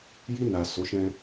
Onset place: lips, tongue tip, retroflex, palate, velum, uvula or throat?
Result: palate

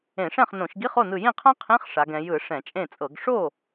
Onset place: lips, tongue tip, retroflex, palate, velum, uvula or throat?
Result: retroflex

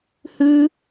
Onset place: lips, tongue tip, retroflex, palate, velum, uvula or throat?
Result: throat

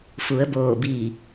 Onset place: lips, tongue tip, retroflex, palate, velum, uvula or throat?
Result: lips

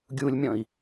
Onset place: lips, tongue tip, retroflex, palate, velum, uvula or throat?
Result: velum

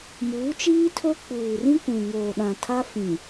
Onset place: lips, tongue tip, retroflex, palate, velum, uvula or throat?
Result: lips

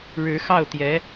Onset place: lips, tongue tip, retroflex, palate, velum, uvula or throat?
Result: retroflex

